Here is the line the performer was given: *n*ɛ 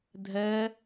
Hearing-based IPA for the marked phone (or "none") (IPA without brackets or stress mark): dʱ